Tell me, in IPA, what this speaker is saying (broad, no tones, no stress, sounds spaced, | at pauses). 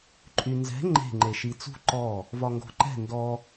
ǃʼ y n z ɛ̤ ŋ͡ǃ e̤ ŋ͡ǃ e ʃ i t͡s ṳ ǃ ɔ | v ɒ ŋ ɡ o̤ ǃ ɛ̤ n d ɔ